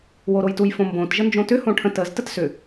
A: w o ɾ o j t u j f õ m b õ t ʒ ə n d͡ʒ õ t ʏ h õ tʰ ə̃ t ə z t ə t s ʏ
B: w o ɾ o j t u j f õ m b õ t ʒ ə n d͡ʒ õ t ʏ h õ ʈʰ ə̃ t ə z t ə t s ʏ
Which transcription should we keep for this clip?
B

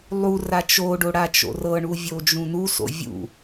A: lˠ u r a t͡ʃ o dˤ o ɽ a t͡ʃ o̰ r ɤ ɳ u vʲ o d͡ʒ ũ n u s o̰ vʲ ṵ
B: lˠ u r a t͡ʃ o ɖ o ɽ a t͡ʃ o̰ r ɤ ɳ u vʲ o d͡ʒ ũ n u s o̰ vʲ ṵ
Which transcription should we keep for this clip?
B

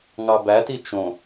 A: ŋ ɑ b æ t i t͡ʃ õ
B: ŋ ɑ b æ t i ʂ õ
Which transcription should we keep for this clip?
A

